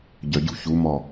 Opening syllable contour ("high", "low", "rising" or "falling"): low